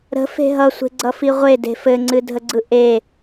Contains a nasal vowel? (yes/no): no